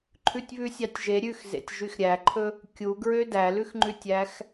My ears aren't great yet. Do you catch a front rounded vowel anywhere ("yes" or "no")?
yes